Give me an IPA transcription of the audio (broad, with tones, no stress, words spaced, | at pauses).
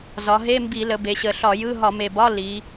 zɒ˩˧ɦe˧˥˧mbi˧˩˧ lə˩˧ be˩˧ɕə˨˩ɬɒ˧˩˧jɯ˧˥˧ ɦɒ˧˩˧me˨˩bɒ˧˥˧ li˩˧